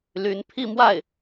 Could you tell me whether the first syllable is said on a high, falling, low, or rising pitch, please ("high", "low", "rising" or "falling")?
rising